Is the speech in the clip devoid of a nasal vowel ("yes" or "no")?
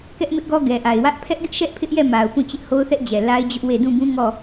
no